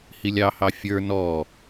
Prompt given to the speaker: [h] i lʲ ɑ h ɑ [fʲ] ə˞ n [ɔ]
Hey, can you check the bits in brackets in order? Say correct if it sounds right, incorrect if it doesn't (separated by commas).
correct, correct, correct